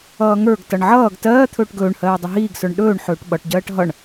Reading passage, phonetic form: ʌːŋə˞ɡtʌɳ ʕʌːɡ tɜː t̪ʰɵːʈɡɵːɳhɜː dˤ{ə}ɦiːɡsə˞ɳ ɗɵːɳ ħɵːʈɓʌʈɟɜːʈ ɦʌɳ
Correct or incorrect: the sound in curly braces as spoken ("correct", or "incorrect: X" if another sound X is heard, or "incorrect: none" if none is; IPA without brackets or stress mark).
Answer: correct